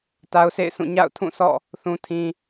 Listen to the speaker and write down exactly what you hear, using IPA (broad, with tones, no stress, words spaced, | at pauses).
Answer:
ta˦ʊ̯sʰḛ˦˨ɪ̯sũ˦˨ ɲa̰˦˨ʊ̯tʰũ˦˨sʰɔ̰˦˨ | θũ˦tʰĩ˦